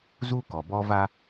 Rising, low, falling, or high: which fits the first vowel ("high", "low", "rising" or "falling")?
high